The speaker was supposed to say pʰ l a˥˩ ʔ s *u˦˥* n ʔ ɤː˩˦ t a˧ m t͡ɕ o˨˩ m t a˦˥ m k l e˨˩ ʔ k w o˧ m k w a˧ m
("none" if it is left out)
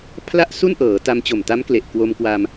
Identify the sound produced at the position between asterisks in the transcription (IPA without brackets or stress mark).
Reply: u˥˩